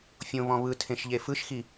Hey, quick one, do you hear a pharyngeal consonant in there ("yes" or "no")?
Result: no